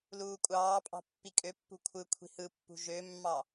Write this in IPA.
l uː kʷʼ ɑː pʼ ɑ̤ pː i kʼ ø pː ṳ kʷʰ ɯ kʷʰ i̤ h ɯ pː ṳ ʒ ø mː ɑ

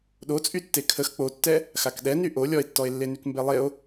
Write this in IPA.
ɗ o t͡sʼ y tː e kʰ ə x k͡p o tː ɛ | x a k ɗ ɛ n y ʔ o lʲ ɔ e̯ tː ɔ e̯ lː e n y k m b e lˠ e o̯

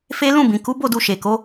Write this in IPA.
f e˦ l ũ˦˨ b ĩ˨ k u˨˦ b o˦˨ d u˧ ʃ e˨ k o˨˦

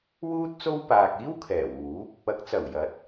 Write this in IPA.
w uː˥ t̚ t͡s o˥ w p aː˨ k̚ iː˥ w kʰ ɛː˨˩ w uː˨˥ p̚ | ɐ˨˥ k̚ t͡s ɐ˨˩ w j ɐ˨˥ t̚

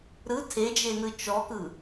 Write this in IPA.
ɾ ɯ tʰ e d͡ʒ e n ɯ t͡ʃ ɔ k ɯ

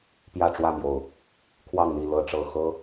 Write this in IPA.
p j ä˥˨ ʈ͡ʂ w ä˥˨ m j o˨˩ ʊ̯ | kʰ w ɑ˥˨ ŋ n̪ i˥˨ l ɤ˥˨ ʈ͡ʂ ɤ˥˨ x ɤ˦

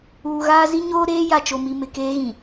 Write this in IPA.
uː˨ ɣ aː˦ z i˦ ɲ oː˦ ɾ eː˦ j a˨ t͡ʃ o˨ m i˨ m ɪ˨ k eː˦ ɣ ĩ˨

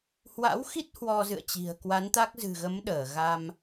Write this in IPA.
h w a̰˧˥ w x i˦˥ t̚ h w ɔ˧ z ɨ̰˧˨ ə̯ t͡ɕ i̤˨˩ ə̯ k w a˨˦ n t̪ a˦˥ k̚ z ɨ̤˨˩ ɣ ə˨˦ m ɗ əː˧˩ ɣ a˧ m

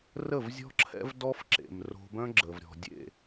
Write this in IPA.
r ə˦˨ v zʲ ɔ̤˦ ǁʰ ɛ̰˦ v d ɔ˦ f ǁ ḛ˨ m r o̤˧ b œ̃˦ ɡ͡ǁ ə˨ v ɾʲ ɔ̤˨ dʲ ḛ˦˨

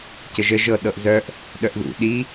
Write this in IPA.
c ə ʒ ə ʒ ɤ ɗ ɤ ʔ z œ ʔ | ɗ œ ʔ ð ṵ ɗ i

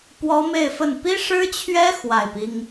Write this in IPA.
p w ɔ˥ m e˥˧ ɪ̯ f ə˥˩ n p i˥ ʂ ɻ̩˥ t͡ɕʰ ɥ ɛ˥ x w a˥˩ ɪ̯ p i˥ ŋ

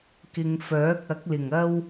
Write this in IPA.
k ɪ˨ ŋ f œː˨˥ k̚ ɐ˨˥ k̚ l ɪ˨˩ ŋ ɐ˥ w

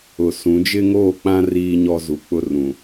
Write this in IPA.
ʊ˨ s ũ˨˦ d͡ʒ ɪ˦ ŋ oː˦˨ k͡p ã˦ r iː˦ ɲ ɔ˦ z u˨ k͡p ʊ˦ r ũ˨

